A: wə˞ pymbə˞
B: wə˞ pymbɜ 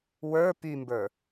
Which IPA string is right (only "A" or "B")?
A